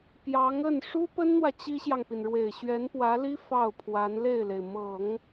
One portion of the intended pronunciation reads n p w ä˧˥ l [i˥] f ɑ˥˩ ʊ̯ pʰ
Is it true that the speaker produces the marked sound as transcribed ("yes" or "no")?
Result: yes